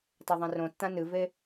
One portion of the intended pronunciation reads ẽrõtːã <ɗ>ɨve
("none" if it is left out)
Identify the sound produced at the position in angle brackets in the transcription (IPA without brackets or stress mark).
n